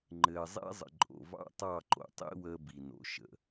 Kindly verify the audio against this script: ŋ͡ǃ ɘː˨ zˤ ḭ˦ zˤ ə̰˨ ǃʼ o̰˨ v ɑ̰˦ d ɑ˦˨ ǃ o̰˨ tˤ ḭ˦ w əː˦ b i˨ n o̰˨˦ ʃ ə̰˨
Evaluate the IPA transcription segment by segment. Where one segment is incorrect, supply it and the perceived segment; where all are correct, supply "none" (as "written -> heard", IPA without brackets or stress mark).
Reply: d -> tˤ